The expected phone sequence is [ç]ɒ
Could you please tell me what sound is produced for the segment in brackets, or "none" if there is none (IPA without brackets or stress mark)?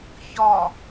ç